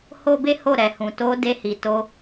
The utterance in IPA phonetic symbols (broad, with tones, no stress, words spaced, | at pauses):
ho˦be˦ho˦˨ ɾɛ˨hũ˨ to˧ de˧hi˨ to˧